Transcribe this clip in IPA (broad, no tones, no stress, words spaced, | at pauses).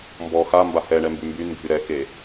mbɔ xa mbahɛɳɛ mbymbynɡʱy ɾɛke